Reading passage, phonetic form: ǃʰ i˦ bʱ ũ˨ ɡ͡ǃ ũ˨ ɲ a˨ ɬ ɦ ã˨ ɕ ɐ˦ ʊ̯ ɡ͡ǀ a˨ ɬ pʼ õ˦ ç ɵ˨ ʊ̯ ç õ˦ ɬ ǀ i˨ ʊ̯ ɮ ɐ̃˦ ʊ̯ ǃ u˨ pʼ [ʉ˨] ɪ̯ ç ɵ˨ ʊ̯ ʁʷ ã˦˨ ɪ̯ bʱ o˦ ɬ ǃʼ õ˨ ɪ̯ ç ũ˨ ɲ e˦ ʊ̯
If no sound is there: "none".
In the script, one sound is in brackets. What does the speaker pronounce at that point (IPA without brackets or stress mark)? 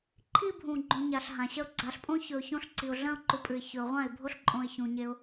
ʉ˨